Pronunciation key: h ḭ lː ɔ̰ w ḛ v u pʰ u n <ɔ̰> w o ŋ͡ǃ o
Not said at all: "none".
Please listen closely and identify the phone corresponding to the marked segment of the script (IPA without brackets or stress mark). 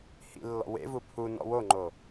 ɔ̰